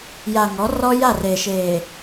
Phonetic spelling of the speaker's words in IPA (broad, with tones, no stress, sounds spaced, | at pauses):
j a˨ ŋ ɔ˨˦ r ɔ˦ j a˦˨ r eː˨ ʃ eː˨